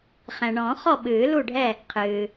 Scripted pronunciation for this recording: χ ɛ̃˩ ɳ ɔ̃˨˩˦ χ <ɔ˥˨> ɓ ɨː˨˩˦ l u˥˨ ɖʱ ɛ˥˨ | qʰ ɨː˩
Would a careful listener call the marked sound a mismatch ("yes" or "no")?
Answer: no